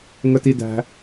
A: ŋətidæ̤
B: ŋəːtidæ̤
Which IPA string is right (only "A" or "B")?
A